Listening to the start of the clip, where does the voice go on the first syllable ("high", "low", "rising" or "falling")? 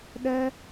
high